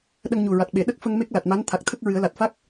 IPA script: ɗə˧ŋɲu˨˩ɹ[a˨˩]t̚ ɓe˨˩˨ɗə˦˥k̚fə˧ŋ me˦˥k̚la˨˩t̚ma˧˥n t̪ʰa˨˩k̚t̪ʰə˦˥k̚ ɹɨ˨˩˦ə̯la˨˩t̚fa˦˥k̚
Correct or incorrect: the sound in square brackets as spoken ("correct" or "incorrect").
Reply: correct